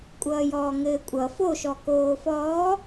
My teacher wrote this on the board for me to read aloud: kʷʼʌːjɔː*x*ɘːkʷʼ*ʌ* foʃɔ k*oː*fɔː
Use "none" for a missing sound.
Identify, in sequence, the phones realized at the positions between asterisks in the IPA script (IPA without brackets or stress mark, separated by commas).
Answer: ŋ, ʌ, oː